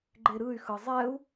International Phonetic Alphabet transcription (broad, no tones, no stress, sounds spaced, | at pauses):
ɡ͡ǃ e ɾ ɯ y̯ x ɯ zˤ ɛ u̯